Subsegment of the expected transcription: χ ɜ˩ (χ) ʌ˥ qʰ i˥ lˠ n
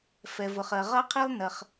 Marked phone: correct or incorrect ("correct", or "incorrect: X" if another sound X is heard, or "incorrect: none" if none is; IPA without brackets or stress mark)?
incorrect: ʁ